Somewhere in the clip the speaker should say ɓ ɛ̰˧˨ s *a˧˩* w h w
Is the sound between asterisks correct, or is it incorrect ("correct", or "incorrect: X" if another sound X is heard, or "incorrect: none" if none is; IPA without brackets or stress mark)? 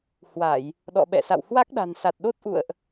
incorrect: a̰˧˨